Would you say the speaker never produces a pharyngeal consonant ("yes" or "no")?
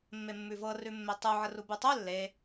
no